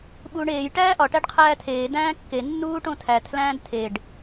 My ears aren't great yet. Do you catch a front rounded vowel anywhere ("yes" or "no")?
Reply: no